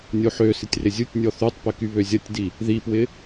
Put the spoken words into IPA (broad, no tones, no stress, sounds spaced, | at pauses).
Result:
nʲ o ħ ø s ɪ tʲ r ɪ zʲ u tʲ nʲ ɔ θ y tˤ p ɪ k y β ø zʲ ɐ tʲ d i | ð i p w ɪ